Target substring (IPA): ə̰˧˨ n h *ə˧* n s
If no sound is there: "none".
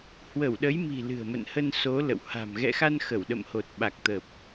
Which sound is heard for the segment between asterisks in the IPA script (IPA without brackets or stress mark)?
ə˧